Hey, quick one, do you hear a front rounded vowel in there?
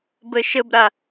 no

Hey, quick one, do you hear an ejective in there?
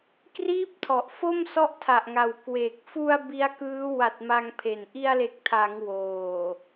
no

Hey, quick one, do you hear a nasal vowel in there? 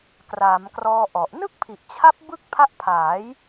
no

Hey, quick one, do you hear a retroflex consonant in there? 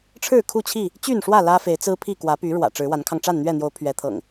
yes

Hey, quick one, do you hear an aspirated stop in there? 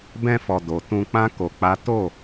no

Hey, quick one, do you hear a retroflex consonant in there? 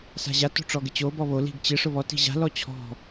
yes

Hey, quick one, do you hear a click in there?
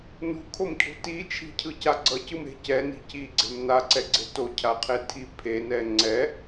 yes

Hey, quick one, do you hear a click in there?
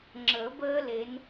yes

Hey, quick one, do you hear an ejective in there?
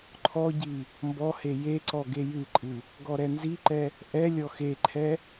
yes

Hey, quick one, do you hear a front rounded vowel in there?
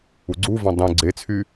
yes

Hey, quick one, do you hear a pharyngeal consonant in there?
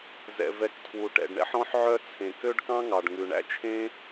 yes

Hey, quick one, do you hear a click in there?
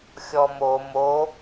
no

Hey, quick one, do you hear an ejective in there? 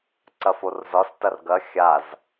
no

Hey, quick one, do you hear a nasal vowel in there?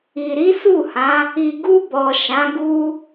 yes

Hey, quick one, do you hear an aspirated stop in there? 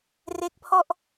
yes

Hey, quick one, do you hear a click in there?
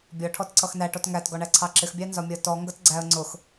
yes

